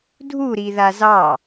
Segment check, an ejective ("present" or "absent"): absent